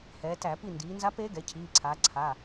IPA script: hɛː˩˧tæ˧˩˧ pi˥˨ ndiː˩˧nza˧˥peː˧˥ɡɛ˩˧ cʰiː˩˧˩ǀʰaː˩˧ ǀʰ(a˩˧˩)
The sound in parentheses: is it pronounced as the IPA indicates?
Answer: yes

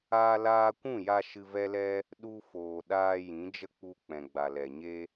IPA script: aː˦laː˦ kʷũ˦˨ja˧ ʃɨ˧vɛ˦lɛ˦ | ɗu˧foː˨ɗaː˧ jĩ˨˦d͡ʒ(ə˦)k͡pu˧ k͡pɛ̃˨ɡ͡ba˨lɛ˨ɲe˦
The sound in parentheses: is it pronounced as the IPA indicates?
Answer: yes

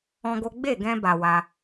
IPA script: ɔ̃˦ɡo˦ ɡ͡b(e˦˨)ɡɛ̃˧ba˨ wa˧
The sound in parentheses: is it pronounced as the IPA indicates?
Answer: yes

